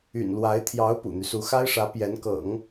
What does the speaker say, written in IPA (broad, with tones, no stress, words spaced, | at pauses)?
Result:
y̰˨˩nlwa˧˥ɪ̯ t̪ʰjɑ˧˥ʊ̯ pṵ˨˩n̪y˦su˧˥ xa˥ɪ̯ʂä˧˥ pjɛ˧˥nkɤ̰˨˩˦ŋ